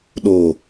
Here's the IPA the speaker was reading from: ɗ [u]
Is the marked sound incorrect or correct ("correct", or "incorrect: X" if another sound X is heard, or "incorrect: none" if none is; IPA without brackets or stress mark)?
incorrect: o